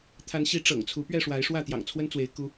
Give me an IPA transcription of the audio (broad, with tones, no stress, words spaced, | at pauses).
t̪ʰa˨˦nɕi˨˦ ʈ͡ʂɤ̰˨˩ŋt͡sʰu˨˦ pɥɛ˥˨ʂwa˨˦ɪ̯ʂwä˥˨ t̪jɑ̰˨˩ŋt͡sʰwə˦nt͡swe˨˦ɪ̯ ku˦